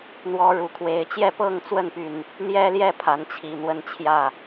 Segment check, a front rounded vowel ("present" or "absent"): present